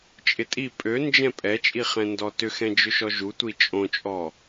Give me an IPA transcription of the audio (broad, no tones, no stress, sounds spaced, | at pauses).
t͡ʃʼ ɪ tʼ i pʼ ø n d͡ʒ ɛ̃ pʼ ɛ t͡ʃʼ i χ ɛ̃ n d ɔ t ʏ x ɛ̃ d͡ʒ ø ʃ ɔ ʒ u tʷ i t͡ʃʼ õ t͡ʃʼ ɔ